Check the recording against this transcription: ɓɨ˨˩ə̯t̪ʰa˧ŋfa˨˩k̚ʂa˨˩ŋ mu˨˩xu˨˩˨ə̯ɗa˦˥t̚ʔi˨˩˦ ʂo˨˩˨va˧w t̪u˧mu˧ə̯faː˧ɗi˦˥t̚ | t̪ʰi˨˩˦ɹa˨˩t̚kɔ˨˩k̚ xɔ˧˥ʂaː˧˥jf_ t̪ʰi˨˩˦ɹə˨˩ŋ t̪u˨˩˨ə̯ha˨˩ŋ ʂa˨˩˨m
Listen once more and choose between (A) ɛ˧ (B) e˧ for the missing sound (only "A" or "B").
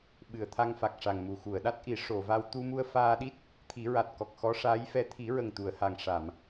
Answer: A